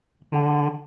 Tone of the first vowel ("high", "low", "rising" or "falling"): high